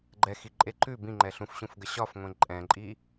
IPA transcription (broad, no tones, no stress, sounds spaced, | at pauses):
ɡ͡ǃ ɛ x i ǃʼ e ǃ ʉ b ĩ ŋ͡ǃ ɛ ɬ ũ f ɕ ũ f ɡ ə ɕ ɒ f ŋʷ ẽ ǃʼ ɛ̃ ǃʼ i